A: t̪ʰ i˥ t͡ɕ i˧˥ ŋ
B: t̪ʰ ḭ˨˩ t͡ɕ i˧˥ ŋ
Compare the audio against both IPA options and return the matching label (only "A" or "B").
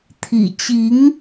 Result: B